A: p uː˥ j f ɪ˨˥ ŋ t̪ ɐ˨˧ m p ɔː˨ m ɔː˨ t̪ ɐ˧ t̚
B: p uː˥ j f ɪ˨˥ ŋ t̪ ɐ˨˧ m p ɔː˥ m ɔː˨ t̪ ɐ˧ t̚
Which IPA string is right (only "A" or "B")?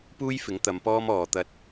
B